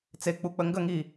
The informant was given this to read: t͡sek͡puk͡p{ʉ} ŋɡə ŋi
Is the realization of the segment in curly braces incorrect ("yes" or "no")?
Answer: yes